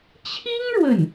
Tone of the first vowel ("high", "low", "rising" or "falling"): high